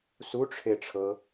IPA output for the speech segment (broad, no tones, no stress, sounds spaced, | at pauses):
s u ʈ͡ʂʰ e ʈ͡ʂʰ ɤ